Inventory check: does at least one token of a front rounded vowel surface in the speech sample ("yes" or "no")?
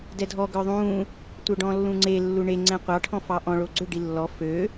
yes